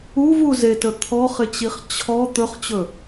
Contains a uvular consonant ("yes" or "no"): yes